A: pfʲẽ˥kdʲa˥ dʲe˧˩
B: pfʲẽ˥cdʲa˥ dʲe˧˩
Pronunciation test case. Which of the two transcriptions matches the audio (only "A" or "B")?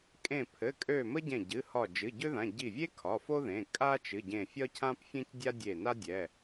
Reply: B